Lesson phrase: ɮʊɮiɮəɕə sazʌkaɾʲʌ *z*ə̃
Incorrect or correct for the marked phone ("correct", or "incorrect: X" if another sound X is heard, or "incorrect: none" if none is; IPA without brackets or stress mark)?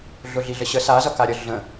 incorrect: ɮ